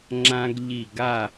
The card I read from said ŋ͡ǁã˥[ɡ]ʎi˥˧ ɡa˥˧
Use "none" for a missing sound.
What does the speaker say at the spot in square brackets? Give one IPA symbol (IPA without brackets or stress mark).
ɡ